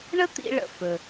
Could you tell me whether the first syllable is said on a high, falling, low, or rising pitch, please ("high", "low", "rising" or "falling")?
high